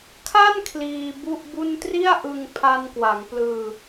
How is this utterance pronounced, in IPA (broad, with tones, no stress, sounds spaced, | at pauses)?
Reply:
kʰ a˥˩ n kʰ l iː˧ b u˥˩ ʔ b u˥˩ n t r i˥˩ a̯ ʔ ɯ˧ ŋ pʰ a˧ n k w a˩˦ ŋ p l ɯː˧